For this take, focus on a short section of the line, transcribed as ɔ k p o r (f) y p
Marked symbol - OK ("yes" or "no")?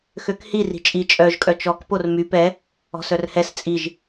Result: no